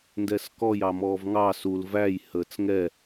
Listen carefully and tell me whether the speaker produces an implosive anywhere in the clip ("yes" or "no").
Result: no